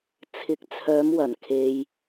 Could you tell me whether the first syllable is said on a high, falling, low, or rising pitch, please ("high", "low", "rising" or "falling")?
rising